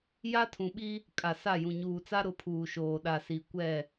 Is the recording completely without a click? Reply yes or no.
yes